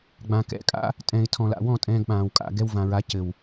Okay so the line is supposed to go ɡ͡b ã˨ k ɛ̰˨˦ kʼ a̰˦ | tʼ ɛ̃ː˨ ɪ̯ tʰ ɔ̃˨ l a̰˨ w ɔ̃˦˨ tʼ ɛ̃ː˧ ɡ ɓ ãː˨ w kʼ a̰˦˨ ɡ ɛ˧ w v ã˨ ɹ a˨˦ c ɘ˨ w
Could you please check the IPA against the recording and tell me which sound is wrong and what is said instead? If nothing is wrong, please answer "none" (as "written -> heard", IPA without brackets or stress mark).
none